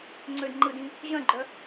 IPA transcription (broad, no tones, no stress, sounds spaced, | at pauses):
ŋ͡ǀ ø d ŋ͡ǃ ɯ d ĩ | ʑ œ̃ ɡ͡ǃ œ